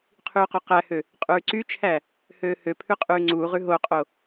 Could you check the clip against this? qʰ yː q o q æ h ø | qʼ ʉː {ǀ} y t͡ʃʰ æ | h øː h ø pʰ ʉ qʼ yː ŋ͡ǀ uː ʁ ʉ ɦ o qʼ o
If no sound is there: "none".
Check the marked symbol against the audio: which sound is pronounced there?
ǀ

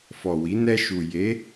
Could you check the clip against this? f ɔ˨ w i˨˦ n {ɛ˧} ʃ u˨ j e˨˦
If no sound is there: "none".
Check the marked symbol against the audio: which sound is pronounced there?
ɛ˧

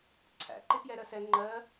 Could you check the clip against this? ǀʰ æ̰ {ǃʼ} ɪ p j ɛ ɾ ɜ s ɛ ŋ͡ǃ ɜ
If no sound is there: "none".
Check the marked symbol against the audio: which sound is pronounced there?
ǃ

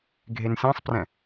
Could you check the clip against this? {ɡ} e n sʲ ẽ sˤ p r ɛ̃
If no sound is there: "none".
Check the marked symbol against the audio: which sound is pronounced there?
ɡʱ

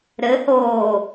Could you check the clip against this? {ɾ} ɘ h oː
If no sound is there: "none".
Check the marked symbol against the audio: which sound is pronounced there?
ɾ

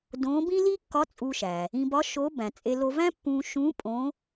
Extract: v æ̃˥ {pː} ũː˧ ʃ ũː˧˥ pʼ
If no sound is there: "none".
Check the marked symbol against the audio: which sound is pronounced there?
pː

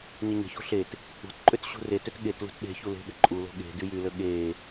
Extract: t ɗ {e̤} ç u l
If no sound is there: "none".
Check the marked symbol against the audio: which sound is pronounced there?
e̤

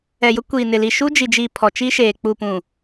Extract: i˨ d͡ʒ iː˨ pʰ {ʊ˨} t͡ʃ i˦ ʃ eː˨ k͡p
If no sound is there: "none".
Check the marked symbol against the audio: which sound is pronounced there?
ɔ˨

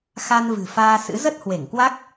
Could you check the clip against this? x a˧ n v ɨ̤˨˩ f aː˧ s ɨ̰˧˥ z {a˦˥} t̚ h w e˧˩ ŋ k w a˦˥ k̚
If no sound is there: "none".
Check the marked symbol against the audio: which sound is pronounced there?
ə˦˥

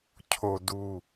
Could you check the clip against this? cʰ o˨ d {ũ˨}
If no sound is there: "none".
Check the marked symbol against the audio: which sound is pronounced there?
u˨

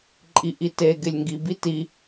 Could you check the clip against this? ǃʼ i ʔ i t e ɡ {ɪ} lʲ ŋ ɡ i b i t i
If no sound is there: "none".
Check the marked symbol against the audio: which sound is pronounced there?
ɪ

